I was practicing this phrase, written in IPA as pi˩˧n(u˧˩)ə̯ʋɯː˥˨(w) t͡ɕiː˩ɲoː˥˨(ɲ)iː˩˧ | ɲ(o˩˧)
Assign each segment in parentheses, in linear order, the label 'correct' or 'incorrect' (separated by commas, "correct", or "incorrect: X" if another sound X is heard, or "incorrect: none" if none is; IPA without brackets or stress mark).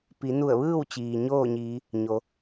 correct, correct, correct, correct